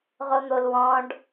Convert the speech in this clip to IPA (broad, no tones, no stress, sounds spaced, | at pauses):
ʁ o n̪ o l w ɔ̃ ɖ